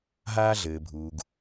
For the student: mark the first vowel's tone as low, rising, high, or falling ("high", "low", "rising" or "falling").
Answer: high